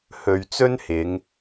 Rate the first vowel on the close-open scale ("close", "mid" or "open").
mid